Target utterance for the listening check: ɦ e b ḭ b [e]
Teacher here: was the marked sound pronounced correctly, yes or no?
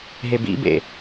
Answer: no